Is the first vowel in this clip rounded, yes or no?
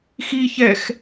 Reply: no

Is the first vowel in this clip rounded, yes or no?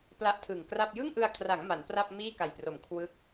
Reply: no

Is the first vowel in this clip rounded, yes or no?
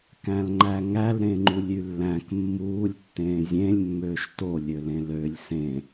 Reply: no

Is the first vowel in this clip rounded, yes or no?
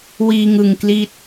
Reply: no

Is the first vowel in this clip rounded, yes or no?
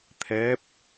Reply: no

